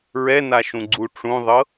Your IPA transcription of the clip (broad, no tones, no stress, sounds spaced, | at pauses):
ɹ ɛ n a ʃ ũ ɡ͡ǀ u ʈ͡ʂ ũ ðˤ ɤ